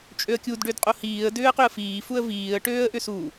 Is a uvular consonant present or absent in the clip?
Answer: present